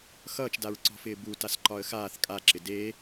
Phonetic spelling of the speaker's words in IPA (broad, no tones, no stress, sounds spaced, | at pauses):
x ʌː t͡ʃ d a ɹ ǀ ɔ̤ f ɪː b u t a s ǃ ɒ ə̯ x aː θ kʼ a ǁ ɪ d e